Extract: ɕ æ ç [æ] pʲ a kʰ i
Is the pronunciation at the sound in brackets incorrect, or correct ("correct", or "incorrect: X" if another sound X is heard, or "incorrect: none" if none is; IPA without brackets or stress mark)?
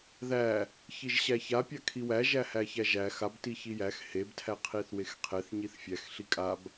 incorrect: a